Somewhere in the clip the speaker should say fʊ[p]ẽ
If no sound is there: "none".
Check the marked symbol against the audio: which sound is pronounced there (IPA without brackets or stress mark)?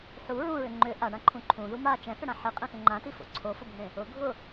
bʱ